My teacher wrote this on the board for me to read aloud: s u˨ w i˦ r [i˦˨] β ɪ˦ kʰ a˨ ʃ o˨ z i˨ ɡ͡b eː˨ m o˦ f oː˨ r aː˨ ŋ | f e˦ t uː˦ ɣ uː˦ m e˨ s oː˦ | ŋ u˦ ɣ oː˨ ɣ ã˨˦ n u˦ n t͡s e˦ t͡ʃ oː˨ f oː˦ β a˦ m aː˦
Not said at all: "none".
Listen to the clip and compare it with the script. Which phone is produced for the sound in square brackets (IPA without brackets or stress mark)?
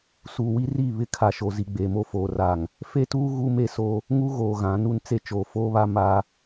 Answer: i˦˨